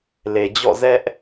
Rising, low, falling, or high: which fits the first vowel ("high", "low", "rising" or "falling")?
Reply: low